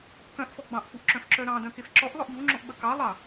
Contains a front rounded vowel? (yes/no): yes